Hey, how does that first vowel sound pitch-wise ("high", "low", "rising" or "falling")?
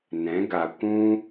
rising